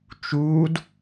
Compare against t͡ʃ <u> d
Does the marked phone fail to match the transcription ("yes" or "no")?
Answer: yes